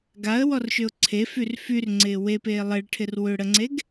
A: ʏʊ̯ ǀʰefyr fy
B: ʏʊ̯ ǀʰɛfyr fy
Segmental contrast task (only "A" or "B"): A